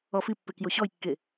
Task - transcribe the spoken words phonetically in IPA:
ɔ f i pː e k j o ɕ ɔ j kː e

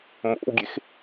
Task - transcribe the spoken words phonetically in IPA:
m o̰ w ɡʲ e x

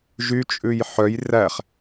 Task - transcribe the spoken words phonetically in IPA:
ʒ y t͡ʃʼ ʉ j ħ œ j r æ χ

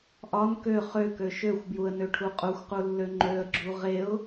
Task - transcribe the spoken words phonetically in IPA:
ʔ ɒ n k ø χ ø k ø ʃ ø xʷ b j u ə̯ n ø ʈʰ u qʼ u xʷ q u lː ø ŋ͡ǃ ø ə̯ ɡ͡ǁ u ʁ e ʊ̯

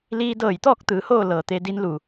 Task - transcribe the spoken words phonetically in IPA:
l iː˧ d ɤː˧˩ j t̪ ɔː˥˨ k̚ t̪ ɯː˩˧ h oː˥˨ l ɤː˩ t̪ e˧ d i˧˥ n l u˩

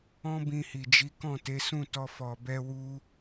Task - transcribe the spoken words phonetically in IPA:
ɔ̃˦ b ĩ˧ h i˨ d͡ʒ i˨˦ k ɔ̃˦˨ t e˨˦ s ũ˦˨ t ɔ˧ f ɔ˨ b ɛ˧ w u˧

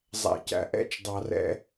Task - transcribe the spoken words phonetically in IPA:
zˤ æ̰˨ c æ̰˨ ʔ ɛ̰˦ t͡ʃ dˤ ɑ˨ r ɛ̰˦

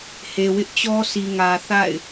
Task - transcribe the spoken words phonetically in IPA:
h e˨ w ɪ˦ ʔ t͡ɕ ɔ˦ sʰ i˨ ŋ ä˨ θ a̰˦˨ ɪ̯

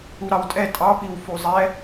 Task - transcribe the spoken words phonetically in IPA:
u ɾ ɑ w tʼ ɛ tʼ ɑ p i w f u zˤ ɛ

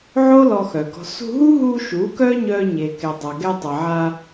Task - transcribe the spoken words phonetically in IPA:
ʕ o˦ l ɔ˧ x œ˨ ɡ ɔ̤˧ s ṳ˧ ɦ u˦ ɦ u˧ ʃ u˨˦ k œ˦ ɲ œ˧ ɲ e˨ k ɛ˨ dˤ a˨ ɡ ɛ˧ tˤ ə˨ ʕ a˧

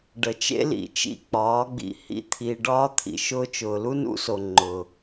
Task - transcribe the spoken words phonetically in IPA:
ɖ ə˨ t͡ʃ ḛ˦ l ḭ˨ t͡ʃ ḭ˦˨ k͡p ɒː˨˦ ɡ͡b ḭ˧ h ḭ˧ t̪ʰ i˨ ɖ ɒː˧ t̪ʰ ḭ˨ ʃ ʊː˧ t͡ʃ ʊː˨ l u˦ n ṵ˦ s o˨ ŋ͡ǃ ʊ˨

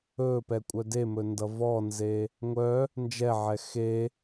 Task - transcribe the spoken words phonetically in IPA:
ɵ p ɛ kʷʼ œ d e m ɵ n d ʌ v ɔ n z e | ŋʷ œ | n d͡ʒ ɛ ʕ ɛ x e

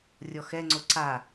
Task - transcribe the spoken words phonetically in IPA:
rʲ ɔ x ɛ ŋ͡ǀ o ǀ a

